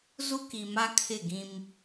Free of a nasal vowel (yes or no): no